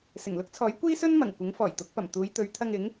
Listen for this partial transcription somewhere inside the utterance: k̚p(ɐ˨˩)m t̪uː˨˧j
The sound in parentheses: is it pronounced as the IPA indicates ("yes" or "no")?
yes